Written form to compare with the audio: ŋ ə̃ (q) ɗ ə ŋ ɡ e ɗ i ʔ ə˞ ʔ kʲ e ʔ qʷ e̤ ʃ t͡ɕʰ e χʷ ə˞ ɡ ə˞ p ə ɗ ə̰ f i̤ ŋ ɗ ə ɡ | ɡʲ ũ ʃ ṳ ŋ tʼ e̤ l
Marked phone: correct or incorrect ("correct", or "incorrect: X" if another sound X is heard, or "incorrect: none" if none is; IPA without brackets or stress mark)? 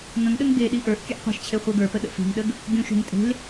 incorrect: ŋ